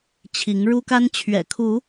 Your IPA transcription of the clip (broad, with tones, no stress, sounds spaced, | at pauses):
t͡ɕʰ i˨˦ ŋ ɻ u˦ k a˦ n t͡ɕʰ ɥ ɛ̰˨˩ kʰ u˨˦